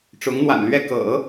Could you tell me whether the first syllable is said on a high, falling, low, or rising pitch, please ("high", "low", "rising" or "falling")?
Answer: rising